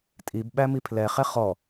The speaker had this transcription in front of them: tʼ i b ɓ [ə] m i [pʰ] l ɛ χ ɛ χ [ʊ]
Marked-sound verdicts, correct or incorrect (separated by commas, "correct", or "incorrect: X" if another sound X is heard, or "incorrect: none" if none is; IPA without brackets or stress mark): incorrect: æ, correct, incorrect: ɔ